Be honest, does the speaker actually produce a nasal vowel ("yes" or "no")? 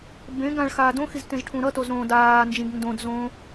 yes